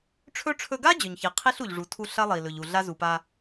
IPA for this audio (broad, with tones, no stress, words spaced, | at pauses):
ʈ͡ʂʰɵ˥ ʈ͡ʂʰɵ˧ɡa˥ d͡ʑɵ˩ɲçi˩ qʰi˥ɬu˩ʎʐu˩tʰu˧ ɬɐ˥ lˠi˩ lɵ˩ʎu˩ɮa˥ zu˩pa˧